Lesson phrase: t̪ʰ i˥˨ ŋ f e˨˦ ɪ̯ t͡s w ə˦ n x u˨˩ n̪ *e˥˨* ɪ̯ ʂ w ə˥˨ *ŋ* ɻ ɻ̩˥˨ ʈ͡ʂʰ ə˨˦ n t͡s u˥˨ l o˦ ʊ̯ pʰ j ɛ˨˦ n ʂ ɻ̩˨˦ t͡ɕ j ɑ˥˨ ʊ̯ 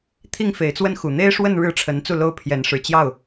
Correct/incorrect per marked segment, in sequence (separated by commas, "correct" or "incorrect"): incorrect, incorrect